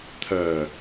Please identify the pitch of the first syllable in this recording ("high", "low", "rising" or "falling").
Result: low